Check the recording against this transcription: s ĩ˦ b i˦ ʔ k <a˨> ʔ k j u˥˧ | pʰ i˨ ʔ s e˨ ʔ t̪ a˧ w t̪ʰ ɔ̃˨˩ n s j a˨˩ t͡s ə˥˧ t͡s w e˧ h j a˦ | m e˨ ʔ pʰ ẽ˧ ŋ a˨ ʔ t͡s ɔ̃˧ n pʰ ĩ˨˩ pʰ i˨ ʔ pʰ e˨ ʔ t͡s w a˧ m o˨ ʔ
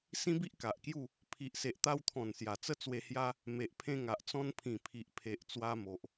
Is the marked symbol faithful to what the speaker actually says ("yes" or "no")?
yes